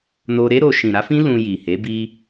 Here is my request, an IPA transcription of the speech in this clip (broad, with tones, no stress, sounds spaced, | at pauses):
n o˧ ɾ e˦ ɾ o˧ ʃ ĩ˨ ɾ a˨˦ f ĩ˦ l ũ˧ j i˨ h e˨˦ b i˧